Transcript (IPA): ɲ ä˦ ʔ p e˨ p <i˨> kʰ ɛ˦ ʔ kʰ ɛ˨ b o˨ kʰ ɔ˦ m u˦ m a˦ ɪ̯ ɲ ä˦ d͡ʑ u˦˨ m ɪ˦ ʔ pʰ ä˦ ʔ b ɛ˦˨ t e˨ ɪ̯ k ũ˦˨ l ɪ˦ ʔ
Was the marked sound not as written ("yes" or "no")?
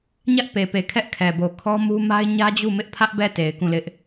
yes